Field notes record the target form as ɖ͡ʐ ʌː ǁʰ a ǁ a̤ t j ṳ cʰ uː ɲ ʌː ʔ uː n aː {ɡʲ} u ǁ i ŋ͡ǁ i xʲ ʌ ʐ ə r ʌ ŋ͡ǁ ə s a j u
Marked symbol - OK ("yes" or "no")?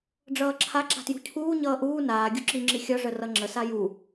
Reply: yes